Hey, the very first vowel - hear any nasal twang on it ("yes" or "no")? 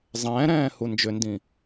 yes